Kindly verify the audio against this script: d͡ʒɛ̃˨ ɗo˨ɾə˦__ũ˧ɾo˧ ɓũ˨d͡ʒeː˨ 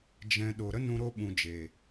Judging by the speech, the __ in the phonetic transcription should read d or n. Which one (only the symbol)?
n